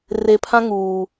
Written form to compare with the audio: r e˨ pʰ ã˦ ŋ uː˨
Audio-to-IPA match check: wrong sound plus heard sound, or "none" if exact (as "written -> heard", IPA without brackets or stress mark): none